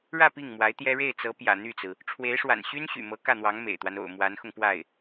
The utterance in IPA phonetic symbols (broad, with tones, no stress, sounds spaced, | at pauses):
ɻ ä˥˧ p i˥˩ ŋ m w a˧˥ ɪ̯ t̪ j ɛ˥ ɻ e˥˩ ɪ̯ t͡s ɤ˧˥ p j ä̰˨˩ n̪ y˥˩ t͡s ɹ̩˩ | ʈ͡ʂʰ w e˧˥ ɪ̯ ʂ w a̰˨˩ n ɕ y˥ n ɕ y̰˨˩ m ɤ˧˥ k ä˥˩ n̪ w ɑ˧˥ ŋ m ḛ˨˩ ɪ̯ t̪ w a˦ n o̰˨˩ ʊ̯ m w a˧˥ n x ʊ˧ ŋ p w a˥˩ ɪ̯